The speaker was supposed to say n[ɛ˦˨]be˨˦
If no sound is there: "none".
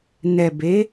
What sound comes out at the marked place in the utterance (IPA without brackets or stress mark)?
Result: ɛ˨